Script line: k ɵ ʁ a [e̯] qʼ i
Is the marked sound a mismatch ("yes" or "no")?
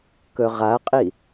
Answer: yes